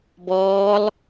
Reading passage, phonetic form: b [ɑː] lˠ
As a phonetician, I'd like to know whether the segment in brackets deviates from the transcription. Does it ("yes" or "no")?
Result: yes